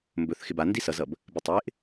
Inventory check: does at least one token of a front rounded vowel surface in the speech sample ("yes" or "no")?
no